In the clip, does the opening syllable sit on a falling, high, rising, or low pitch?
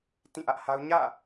falling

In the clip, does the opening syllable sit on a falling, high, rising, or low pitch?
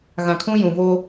low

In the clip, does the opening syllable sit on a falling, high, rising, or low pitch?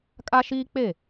high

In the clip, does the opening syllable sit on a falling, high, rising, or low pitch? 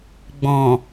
low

